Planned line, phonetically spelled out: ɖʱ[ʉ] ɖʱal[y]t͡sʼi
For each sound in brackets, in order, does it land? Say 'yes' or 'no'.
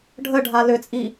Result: no, no

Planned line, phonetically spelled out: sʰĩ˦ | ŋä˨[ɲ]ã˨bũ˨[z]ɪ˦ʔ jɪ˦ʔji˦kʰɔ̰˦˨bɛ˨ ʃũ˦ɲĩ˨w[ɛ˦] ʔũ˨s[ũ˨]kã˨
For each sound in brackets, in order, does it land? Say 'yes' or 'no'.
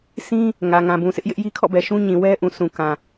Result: no, no, yes, yes

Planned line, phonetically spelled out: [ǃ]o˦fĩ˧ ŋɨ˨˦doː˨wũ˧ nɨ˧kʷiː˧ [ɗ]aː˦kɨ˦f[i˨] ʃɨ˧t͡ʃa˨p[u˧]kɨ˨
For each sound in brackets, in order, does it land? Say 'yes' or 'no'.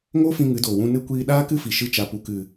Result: no, yes, yes, no

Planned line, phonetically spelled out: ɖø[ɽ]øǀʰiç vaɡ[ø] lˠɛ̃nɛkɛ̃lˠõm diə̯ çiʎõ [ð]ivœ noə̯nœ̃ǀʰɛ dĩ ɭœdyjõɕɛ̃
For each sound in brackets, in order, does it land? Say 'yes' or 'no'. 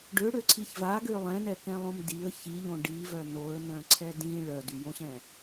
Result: yes, yes, no

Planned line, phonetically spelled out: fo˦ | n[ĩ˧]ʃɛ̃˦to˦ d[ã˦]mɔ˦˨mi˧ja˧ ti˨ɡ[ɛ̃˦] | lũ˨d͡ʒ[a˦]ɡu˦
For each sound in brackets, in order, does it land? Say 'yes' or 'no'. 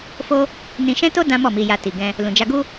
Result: yes, yes, no, no

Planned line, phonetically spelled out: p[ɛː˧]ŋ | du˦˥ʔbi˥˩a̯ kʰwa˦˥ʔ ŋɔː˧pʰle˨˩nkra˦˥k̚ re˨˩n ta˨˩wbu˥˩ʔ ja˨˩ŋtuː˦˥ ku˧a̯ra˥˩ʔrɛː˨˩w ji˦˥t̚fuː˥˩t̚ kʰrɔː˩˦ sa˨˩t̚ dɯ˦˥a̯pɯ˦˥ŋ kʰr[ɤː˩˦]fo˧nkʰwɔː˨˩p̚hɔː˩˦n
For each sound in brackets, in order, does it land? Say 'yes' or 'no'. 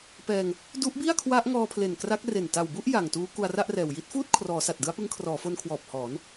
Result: yes, no

